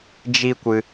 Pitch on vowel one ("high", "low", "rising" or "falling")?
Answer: high